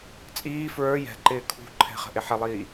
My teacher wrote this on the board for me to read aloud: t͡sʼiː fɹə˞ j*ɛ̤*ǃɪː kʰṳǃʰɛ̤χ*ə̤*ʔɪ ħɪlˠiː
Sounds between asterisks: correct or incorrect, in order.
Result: correct, correct

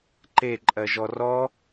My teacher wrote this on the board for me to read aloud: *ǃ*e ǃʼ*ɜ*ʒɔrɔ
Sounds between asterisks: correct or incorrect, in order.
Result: correct, correct

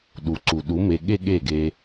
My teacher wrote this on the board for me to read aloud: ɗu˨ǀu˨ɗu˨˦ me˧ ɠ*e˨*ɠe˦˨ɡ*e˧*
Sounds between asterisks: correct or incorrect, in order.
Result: incorrect, correct

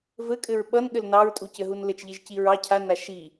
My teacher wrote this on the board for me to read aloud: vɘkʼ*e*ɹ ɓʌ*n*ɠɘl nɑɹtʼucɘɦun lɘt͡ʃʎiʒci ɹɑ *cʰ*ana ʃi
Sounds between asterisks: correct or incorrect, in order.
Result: incorrect, correct, correct

